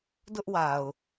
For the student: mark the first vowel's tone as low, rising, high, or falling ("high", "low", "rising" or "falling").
high